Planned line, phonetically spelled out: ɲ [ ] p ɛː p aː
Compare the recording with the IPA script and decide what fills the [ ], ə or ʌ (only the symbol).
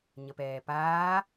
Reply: ə